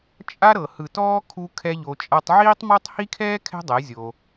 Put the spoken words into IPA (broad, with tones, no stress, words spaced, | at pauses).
t͡ʃʼa˦ɾɤ˨hɯ˨tɔː˦ kʰu˧ kʰɛ˦ʎo˧t͡ʃʼa˦tˤ ʕiː˦tˤmɔ˦tˤ hi˦kʰɛː˦ kʰɛ̤˦dˤɛ˨˦ zʲo˧